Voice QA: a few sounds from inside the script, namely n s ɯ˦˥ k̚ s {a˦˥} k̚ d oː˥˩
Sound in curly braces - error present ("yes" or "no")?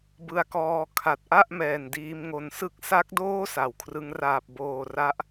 no